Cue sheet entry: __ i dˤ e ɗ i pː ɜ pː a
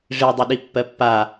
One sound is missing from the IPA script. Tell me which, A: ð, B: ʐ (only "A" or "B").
B